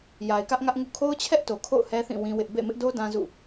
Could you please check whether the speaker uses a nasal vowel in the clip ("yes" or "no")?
yes